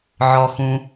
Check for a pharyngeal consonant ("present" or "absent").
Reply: present